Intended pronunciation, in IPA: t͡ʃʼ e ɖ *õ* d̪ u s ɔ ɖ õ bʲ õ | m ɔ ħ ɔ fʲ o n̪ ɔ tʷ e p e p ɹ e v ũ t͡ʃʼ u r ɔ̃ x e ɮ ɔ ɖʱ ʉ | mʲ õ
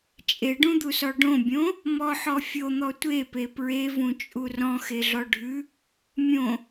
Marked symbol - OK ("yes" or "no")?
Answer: no